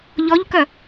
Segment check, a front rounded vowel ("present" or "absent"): present